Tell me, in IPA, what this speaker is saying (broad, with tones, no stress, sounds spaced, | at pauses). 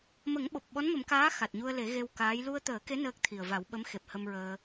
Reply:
m ə˨˩˦ ŋ ɓ o˨˩ p̚ ɓ ɔ˧˥ n m ə˨˩˦ m k aː˧˥ x a˨˩ t̚ ɲ u˧ ə̯ l e˨˩˦ ɣ e˧ w k aː˧˥ j l u˧ ə̯ t̪ əː˨˩˦ k e˧˥ n əː˦˥ k̚ t̪ʰ i˨˩ ə̯ v a˨˩˦ w ɓ ə˧˥ m x e˨˩ p̚ h ə˧ m ɹ əː˧